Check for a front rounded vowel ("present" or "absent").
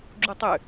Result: present